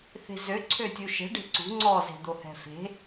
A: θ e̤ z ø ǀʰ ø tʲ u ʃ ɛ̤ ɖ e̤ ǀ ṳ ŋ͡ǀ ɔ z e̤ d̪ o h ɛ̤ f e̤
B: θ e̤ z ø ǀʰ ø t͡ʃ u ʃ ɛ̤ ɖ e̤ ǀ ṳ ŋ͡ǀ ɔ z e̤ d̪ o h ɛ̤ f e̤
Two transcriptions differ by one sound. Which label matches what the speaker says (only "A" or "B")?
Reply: A